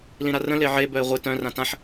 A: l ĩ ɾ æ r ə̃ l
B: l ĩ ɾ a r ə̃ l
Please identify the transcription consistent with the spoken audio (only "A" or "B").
B